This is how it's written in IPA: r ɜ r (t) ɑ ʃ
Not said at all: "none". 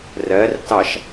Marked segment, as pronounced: t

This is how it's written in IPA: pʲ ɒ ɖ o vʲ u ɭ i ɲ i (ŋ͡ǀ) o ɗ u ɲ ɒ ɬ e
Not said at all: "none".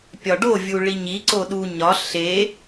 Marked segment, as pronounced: ǀ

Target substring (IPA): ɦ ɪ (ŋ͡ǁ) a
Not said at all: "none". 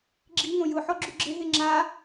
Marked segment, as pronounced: ŋ͡ǁ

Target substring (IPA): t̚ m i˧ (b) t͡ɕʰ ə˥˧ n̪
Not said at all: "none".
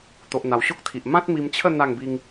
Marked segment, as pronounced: m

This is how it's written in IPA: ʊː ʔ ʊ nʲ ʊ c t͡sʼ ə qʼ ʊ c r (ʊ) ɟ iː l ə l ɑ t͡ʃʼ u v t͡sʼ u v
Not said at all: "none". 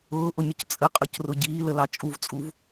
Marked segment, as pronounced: ʊ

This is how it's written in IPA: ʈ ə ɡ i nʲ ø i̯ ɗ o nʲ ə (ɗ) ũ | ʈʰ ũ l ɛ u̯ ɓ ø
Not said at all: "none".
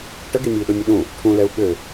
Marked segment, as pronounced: ɗ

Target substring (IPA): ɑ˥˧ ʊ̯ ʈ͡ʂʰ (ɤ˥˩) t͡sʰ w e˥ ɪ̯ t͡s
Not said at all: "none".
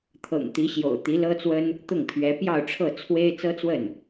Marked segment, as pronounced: ɤ˥˩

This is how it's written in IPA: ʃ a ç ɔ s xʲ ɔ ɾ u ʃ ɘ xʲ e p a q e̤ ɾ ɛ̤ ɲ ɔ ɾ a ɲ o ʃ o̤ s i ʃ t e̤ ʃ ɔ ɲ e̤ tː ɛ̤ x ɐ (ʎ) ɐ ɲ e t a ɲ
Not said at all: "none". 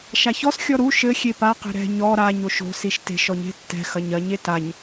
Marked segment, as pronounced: ɲ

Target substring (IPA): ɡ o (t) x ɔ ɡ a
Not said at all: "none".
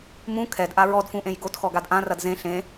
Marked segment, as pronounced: t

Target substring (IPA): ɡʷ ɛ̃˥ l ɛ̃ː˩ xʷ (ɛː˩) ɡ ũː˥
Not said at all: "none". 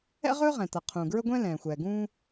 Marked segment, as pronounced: ɛː˩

